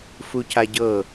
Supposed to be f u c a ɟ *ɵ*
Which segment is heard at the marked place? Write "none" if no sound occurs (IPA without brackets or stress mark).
ɤ